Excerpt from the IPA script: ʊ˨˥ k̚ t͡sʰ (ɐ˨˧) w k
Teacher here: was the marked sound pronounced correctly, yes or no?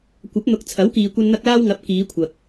no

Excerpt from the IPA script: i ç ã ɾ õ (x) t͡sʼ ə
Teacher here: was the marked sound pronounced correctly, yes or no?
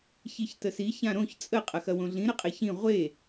no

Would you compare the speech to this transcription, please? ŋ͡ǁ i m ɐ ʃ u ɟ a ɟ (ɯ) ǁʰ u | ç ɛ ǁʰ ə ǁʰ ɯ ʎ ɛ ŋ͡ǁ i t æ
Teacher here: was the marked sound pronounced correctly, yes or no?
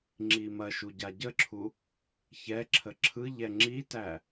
no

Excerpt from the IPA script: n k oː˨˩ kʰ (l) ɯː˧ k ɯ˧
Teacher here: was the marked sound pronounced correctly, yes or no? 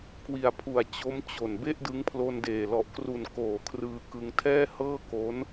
no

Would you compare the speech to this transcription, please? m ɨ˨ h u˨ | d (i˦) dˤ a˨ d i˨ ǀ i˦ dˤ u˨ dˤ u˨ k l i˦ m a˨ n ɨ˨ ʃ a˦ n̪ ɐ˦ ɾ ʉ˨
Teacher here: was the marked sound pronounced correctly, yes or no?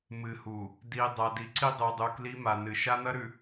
no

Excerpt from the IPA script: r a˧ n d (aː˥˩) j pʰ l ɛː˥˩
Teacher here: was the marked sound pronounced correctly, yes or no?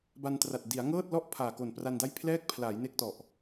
no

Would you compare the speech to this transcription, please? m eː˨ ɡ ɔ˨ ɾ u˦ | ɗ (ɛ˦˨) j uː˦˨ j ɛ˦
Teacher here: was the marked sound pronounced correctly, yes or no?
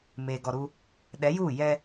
no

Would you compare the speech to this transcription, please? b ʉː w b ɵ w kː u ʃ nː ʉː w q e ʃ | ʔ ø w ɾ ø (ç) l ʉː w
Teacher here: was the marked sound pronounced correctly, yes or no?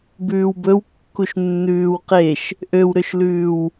no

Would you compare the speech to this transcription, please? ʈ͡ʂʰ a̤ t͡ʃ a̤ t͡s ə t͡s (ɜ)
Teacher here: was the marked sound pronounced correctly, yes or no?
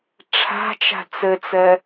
yes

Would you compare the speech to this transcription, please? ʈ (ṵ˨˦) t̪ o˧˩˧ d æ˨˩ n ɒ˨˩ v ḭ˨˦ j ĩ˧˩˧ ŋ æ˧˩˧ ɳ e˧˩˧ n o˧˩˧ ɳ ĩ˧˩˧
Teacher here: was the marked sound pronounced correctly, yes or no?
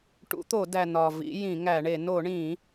yes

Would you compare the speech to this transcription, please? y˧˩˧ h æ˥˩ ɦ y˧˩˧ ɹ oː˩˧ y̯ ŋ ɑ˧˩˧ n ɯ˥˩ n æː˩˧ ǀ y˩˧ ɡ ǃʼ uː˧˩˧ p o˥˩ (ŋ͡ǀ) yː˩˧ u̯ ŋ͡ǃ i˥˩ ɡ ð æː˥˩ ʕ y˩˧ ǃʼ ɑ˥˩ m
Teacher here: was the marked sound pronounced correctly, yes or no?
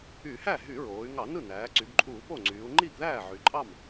yes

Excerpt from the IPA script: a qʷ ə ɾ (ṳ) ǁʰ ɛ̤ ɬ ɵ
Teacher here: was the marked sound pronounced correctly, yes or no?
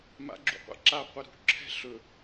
yes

